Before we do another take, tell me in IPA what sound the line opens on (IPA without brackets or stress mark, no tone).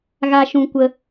ɣ